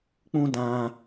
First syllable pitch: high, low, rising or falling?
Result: high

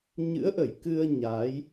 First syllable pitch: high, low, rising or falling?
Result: rising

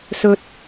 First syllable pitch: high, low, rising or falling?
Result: high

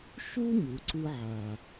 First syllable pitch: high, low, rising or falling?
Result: high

